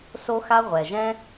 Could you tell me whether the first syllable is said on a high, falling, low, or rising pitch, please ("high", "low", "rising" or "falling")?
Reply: high